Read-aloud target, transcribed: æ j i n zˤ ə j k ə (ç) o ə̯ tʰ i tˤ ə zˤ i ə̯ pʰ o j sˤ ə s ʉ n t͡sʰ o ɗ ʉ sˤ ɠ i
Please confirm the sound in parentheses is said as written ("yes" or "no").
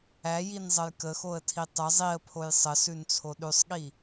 no